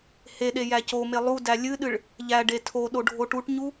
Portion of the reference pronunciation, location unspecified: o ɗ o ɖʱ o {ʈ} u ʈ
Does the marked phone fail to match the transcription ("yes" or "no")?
no